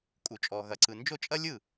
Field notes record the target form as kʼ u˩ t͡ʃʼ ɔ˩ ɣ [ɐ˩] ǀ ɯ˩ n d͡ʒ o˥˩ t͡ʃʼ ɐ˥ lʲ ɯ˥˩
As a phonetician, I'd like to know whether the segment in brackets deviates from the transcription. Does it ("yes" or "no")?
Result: no